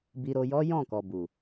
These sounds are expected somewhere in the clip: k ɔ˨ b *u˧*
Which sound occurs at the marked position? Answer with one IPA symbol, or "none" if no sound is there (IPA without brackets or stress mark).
u˨